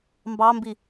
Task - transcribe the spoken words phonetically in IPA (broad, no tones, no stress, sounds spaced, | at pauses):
m b ɑ m b i